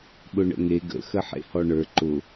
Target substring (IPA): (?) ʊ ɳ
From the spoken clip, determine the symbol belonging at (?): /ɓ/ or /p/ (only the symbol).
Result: ɓ